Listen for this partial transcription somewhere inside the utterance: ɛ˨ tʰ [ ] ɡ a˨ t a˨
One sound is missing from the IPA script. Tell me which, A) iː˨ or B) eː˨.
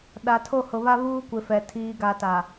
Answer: A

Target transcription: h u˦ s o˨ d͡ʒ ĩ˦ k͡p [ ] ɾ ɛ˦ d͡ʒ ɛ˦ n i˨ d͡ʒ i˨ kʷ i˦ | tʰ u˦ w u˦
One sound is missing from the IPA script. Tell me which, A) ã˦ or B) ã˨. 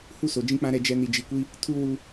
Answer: A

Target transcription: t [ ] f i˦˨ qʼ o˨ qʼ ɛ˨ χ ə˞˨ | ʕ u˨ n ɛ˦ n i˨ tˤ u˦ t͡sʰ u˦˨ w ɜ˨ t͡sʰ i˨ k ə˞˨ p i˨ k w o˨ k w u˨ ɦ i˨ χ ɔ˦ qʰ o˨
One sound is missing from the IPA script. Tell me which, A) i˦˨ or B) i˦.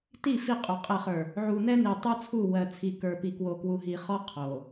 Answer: A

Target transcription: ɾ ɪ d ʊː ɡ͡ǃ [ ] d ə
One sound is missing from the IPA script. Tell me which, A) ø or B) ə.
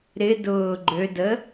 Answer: A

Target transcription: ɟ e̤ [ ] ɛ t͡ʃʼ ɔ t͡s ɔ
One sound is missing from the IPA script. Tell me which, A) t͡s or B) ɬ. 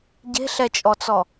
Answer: B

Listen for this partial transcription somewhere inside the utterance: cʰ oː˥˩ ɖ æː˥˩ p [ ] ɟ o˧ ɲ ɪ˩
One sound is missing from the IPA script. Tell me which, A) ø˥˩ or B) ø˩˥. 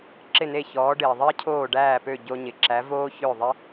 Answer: A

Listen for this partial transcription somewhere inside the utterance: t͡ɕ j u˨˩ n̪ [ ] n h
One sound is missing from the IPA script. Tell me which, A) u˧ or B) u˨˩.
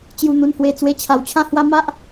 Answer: B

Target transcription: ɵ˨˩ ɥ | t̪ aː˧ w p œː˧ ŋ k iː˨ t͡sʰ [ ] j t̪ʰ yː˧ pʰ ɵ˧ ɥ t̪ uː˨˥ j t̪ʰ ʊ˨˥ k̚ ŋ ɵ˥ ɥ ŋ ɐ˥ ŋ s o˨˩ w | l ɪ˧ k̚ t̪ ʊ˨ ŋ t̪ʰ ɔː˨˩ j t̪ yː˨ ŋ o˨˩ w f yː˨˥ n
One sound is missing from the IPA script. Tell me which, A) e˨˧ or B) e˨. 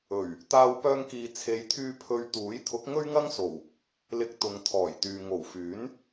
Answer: A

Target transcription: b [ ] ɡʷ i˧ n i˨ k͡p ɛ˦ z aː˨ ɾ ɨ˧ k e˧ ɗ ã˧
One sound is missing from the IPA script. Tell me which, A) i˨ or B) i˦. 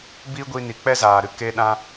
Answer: B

